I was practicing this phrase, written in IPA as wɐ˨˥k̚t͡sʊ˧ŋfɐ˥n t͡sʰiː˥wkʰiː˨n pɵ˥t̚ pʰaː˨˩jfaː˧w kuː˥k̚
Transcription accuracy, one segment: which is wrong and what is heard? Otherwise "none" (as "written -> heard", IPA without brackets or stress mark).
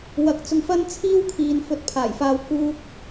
p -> f